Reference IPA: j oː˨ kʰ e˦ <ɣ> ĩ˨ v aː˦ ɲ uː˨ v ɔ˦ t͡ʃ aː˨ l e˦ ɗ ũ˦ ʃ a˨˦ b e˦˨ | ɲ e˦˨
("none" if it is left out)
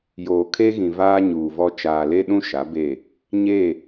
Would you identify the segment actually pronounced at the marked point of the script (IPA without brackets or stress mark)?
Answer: ɣ